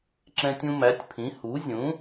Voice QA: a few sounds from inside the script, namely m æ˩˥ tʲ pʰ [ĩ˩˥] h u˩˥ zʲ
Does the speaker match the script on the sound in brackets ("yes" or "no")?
yes